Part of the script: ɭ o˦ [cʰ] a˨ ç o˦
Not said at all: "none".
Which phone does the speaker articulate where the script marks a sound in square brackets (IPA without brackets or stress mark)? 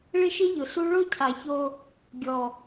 cʰ